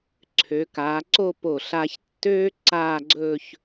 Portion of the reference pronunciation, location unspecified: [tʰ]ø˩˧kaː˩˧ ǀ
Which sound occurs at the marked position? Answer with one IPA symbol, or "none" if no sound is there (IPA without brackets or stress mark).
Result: ǀʰ